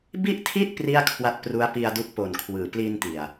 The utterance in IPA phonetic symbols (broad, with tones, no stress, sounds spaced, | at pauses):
b i˥˩ ʔ tʰ i˥˩ t̚ p r i˥˩ a̯ kʰ w a˦˥ t̚ p r u˦˥ a̯ p i˧ a̯ d u˦˥ k̚ p o˨˩ n kʰ w ɯː˩˦ p l i˧ n t i˨˩ a̯